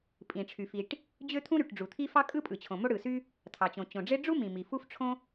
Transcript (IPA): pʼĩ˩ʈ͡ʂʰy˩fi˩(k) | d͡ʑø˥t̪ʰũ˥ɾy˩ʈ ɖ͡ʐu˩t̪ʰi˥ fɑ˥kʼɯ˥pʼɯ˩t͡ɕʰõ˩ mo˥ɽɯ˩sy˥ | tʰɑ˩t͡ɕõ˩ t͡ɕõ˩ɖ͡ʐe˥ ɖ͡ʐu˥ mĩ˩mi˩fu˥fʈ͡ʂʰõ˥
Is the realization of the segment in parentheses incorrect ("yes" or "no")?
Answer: yes